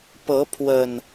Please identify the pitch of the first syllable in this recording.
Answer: rising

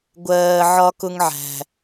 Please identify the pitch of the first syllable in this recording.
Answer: low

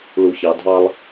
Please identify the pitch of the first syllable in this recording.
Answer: low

